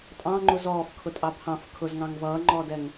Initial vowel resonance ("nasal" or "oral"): nasal